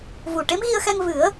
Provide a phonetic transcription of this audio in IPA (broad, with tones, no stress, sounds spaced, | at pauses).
v u˨˩ ʈ e˧˥ m ɣ i˧ ə̯ x ɛ˧ ŋ v ɨ˨˩˦ ə̯